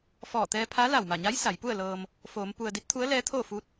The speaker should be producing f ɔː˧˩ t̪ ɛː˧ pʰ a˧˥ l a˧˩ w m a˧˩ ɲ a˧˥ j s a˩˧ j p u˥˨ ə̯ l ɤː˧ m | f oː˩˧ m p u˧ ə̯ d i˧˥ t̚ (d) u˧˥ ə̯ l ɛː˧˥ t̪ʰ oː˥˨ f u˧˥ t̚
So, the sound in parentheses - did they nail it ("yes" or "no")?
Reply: no